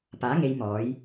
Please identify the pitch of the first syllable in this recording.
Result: rising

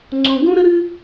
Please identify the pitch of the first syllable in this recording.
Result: low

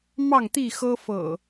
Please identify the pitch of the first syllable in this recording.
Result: falling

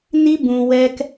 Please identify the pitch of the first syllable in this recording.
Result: high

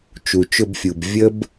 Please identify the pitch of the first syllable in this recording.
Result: low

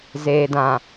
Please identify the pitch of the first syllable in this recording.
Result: low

